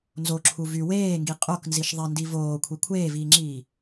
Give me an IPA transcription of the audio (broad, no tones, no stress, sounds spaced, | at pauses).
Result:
n z o ǁʰ u v y w eː ŋ ɡ i qʼ o k n z i ʃ ðˤ e n d i v oː kʷʰ i kʷʰ eː v iː ŋ͡ǁ iː